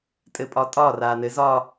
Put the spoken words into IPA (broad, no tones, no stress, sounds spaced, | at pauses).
tʼ ɘ pʼ ɒ tʼ ɒ r a n ɘ z ɒ